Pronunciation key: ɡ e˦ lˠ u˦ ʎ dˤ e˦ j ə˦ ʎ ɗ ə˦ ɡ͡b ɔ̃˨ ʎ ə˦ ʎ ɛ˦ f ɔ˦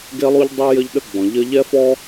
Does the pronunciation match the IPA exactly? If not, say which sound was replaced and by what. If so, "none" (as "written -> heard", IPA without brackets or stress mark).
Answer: none